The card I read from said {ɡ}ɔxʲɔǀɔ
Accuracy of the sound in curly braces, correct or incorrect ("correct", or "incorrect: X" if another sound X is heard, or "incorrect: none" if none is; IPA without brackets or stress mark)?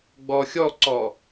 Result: incorrect: ɡ͡b